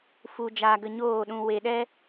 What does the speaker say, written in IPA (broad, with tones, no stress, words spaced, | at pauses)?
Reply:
fu˧ d͡ʒaː˧ɡə˧ɲoː˦˨ɗũ˧ we˧ ɗɛ˦